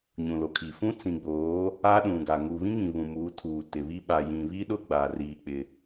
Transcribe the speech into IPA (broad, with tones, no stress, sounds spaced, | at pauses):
ɲ ũ˨ l o˨ kʰ i˨ f ũ˦ t͡s ĩ˨ ɡ͡b oː˨˦ | aː˦ ɗ ũ˨ ɡ a˨ ŋ u˨ β ĩ˦ ŋ ĩ˨ β ũ˨ m uː˨˦ tʰ uː˨ t ɪ˨ β i˦ ɓ a˨ j ĩ˨ β i˦ ɗ ʊ˦ ɡ͡b aː˨ r iː˦ k͡p ɪ˦